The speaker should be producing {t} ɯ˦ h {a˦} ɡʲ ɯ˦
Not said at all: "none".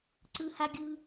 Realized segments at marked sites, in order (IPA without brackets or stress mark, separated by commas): ǀ, a˦